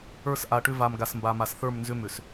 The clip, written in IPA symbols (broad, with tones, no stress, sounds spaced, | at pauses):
ə˞˦˨ s ʔ a˨ ʈ ʏ˦ v a˨ m ɡ a˨ s m b a˨ m a˨ s θ ə˞˦˨ m n z ʏ˦ m ʏ˨ s